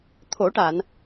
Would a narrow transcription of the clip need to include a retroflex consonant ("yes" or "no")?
yes